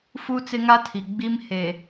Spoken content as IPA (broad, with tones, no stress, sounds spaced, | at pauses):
f u˦ t͡s ɪ˦ ŋ a˦ tʰ i˨ ɡ͡b i˦ m h e˨